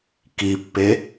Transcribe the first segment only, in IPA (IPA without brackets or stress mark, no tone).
k